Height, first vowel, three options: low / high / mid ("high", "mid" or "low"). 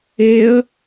mid